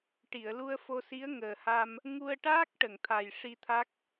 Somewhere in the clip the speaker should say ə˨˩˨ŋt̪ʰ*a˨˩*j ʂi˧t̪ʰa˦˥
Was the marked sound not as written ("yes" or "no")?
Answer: no